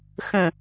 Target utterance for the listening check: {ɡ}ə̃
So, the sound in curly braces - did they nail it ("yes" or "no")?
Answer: no